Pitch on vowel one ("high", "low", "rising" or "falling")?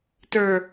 low